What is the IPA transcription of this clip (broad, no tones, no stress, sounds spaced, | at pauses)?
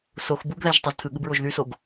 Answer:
s o x b u ɡ ð æ ʒ tˤ o z tʰ ɯ ɠ ɯ b ɹ o ʒ ð y s o ɡ